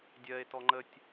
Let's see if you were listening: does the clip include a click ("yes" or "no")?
yes